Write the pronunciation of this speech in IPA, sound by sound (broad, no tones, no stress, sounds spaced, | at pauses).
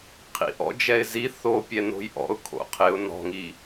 qʰ ḭ ʔ ɔ̰ d͡ʒ ɛ ɪ̯ z i θ o pʲ ɛ n o̤ j ʔ ɔ̰ ʊ̯ kʰ o̰ qʰ ɪ ʊ̯ n ɔ̤ ŋ i